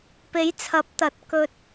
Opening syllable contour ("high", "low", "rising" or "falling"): rising